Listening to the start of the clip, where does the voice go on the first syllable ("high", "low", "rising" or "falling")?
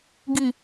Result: low